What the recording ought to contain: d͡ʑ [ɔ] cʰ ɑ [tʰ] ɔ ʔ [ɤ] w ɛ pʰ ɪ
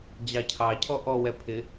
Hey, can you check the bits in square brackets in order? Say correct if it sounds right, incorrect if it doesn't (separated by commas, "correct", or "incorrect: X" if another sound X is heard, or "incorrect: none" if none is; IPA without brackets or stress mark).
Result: incorrect: ɑ, incorrect: cʰ, incorrect: ɔ